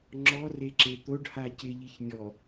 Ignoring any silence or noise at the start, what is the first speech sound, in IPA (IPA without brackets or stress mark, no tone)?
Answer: ŋ͡ǁ